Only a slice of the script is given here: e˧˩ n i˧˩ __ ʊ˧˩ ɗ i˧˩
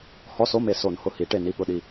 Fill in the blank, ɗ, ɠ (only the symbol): ɠ